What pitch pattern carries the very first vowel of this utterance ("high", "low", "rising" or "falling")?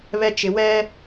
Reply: low